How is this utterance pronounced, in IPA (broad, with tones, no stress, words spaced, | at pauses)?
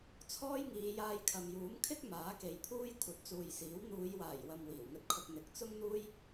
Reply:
t͡sʰɔː˥jŋiː˨˧jaː˧jkʰɐ˨m juː˨˥m kʰɪ˥k̚ maː˨˥ke˨˧jpʰuː˥j kʷʰɐ˨˥t̚t͡suː˨jsiː˨˥w n̪uː˨˧jwaː˨˩jwɐ˨m wiː˨˩wŋɵ˧t̚kʰʊ˧k̚ n̪ɪ˨k̚ t͡sʊ˥ŋn̪uː˥j